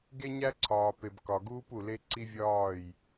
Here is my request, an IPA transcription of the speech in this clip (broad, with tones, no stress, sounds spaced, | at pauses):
ɡ e˦ ɲ æ˦ ǀʰ ɒː˨ p e˨ b k ɒ˨ ɡ uː˦ p u˨ l e˦ ǀ i˦ vʲ ɒː˦˨ j